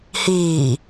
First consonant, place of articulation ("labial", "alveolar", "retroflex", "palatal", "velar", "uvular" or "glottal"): glottal